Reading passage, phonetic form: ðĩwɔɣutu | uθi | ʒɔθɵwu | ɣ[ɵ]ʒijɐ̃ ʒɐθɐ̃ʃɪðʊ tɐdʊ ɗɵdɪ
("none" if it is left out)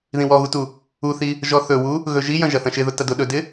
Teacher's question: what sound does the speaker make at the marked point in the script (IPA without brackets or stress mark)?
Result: ɵ